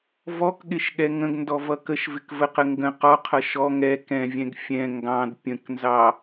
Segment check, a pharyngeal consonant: absent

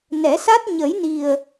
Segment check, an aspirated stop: absent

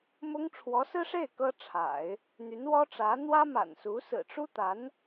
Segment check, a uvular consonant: absent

